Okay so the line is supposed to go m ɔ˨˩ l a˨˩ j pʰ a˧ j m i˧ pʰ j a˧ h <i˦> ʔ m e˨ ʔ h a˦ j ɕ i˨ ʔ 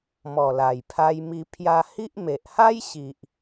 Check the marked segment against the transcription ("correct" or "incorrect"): correct